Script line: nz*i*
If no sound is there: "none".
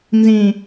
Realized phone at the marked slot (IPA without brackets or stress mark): ĩ